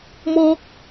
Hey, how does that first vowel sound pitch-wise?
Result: high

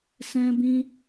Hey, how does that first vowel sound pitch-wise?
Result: high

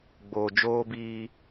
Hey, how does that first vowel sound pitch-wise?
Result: low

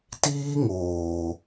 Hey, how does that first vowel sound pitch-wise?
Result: high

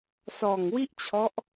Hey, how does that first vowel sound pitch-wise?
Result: low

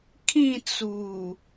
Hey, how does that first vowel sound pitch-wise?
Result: falling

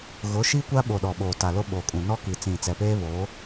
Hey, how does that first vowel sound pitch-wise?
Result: rising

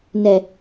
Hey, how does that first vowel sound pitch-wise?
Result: low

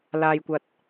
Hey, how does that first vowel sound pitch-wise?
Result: low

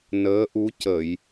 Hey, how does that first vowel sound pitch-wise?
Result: rising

